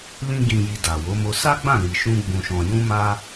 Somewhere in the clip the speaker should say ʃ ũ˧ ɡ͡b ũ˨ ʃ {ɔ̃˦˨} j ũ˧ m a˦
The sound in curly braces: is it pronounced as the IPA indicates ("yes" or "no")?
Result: no